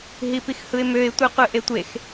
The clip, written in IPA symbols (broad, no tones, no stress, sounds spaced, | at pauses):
ɦ i p i x h ɯ ɪ̯ m ø ɪ̯ tʷ ɯ qʷ ɯ ʔ e tʷ e x